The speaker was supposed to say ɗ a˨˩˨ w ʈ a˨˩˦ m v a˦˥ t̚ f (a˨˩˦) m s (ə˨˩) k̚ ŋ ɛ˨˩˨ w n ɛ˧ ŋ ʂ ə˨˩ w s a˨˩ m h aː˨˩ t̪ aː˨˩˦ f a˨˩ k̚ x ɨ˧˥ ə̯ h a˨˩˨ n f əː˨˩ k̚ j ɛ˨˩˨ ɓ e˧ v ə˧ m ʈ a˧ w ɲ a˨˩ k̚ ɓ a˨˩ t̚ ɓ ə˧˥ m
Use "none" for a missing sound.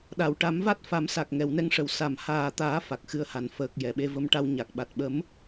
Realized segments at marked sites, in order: a˨˩˦, a˨˩

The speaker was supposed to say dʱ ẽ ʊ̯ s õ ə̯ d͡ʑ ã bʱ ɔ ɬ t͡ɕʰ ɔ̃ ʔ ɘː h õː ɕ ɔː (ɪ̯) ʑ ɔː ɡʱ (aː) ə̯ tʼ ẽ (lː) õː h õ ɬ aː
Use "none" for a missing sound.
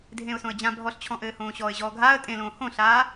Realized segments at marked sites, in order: ɪ̯, aː, l

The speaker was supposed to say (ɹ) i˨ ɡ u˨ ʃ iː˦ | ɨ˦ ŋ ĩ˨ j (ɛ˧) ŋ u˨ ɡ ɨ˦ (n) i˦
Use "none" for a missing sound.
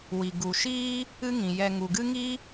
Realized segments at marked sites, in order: w, ɛ˧, ŋ

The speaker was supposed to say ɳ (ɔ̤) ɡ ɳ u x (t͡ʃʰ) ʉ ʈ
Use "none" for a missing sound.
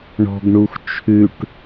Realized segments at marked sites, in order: ɔ̤, t͡ʃʰ

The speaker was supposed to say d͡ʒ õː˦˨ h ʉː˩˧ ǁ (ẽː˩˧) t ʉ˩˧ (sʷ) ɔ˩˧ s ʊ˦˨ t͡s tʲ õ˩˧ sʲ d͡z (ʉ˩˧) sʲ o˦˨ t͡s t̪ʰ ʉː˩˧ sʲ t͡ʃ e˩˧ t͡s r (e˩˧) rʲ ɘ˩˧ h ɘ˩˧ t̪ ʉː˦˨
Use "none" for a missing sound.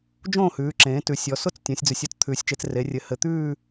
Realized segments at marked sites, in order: ẽː˩˧, sʲ, ʉ˩˧, e˩˧

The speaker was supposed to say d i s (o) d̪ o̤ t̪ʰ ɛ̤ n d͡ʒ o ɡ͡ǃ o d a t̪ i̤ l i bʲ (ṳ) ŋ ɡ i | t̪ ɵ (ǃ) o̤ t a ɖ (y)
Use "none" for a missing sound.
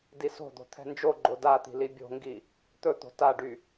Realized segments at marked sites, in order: o̤, o̤, t̪, y

